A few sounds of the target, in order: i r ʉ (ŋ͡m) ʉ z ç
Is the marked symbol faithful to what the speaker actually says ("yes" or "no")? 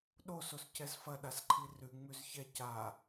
yes